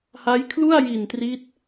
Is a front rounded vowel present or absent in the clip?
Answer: absent